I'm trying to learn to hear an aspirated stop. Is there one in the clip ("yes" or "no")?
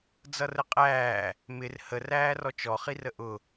no